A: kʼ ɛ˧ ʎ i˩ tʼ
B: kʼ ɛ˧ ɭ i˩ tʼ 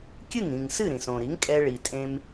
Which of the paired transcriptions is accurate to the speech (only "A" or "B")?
B